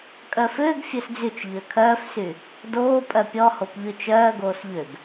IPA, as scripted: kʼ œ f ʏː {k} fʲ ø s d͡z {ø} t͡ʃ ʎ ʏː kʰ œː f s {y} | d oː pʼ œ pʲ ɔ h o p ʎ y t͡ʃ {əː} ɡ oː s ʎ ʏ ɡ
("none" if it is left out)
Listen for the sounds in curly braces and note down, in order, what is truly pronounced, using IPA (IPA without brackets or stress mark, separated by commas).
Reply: ɡ, y, y, œː